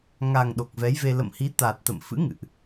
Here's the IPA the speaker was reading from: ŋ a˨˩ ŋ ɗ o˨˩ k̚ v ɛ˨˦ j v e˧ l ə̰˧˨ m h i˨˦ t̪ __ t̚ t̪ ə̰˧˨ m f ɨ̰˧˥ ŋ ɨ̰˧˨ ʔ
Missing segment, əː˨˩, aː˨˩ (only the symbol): aː˨˩